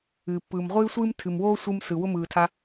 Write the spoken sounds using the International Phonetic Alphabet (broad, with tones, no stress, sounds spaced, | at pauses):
ɨː˨ pː ɯː˨ m ʁʷ ɨː˦ sʷ ɨː˦ m tʰ ɨ˨ m w oː˦ sʷ ɯ˧ m s ɯ˨ w ʊ˦ m ɯː˨ tʰ a˧